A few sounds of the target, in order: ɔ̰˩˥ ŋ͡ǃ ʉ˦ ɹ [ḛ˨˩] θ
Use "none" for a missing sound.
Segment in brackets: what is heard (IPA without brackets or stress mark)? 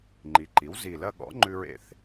ḛ˨˩